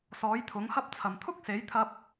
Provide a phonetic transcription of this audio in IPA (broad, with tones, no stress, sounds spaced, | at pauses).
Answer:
s ɔː˨˥ j t̪ʰ ʊ˨˥ ŋ h ɐ˥ p̚ t͡sʰ ɐ˨ m t̪ʰ ʊ˥ k̚ s e˨˥ j t̪ʰ ɐ˧ p̚